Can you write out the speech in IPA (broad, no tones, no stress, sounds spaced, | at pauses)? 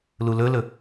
l u l ɵ l ɵ